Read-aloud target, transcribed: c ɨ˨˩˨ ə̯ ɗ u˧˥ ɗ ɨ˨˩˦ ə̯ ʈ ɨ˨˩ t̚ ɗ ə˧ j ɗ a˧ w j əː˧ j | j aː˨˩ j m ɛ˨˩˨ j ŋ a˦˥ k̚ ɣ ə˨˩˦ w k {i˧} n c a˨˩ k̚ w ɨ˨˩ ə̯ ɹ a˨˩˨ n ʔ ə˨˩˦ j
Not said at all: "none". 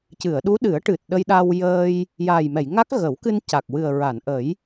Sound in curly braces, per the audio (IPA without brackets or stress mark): ɨ˧